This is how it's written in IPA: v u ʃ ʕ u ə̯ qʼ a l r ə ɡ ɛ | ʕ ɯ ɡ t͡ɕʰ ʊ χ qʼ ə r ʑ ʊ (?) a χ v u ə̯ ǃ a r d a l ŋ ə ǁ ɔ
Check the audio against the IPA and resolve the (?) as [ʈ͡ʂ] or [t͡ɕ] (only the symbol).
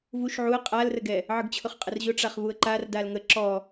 ʈ͡ʂ